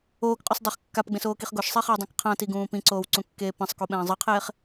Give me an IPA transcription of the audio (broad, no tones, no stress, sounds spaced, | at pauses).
oː k qʼ o s dˤ o χ kː a p ɡ͡b ẽ s oː k i χ ɡ o ʃ sˤ e χ i w dˤ ĩ k qʰ ã t i ɡ ũː p ĩ ǀ oː w ǀ ũ kː eː p ẽ sˤ k u ɓ ɛ̃ː zˤ ɯ qʰ eː χ